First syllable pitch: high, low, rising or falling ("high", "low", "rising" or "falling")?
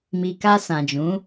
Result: low